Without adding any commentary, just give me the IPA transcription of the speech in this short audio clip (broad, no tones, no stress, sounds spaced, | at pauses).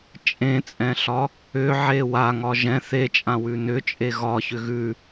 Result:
t͡ʃʼ ẽ t͡sʼ ɛ̃ ɬ ɒ | ʏ ʕ e w a ŋ ɒ ʒ ɛ̃ θ e t͡ʃʼ ã w ʉ n ʏ t͡ʃʼ e ɣ ɒ ç ʏ ɣ ʉ